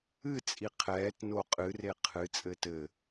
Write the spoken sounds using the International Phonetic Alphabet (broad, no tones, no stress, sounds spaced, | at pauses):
ɨ t͡sʼ i qʰ ɛː t n o qʼ ɨ r e qʰ ɨ t͡sʼ ɘː t ɘ